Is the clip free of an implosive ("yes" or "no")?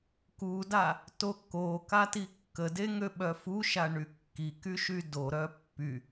no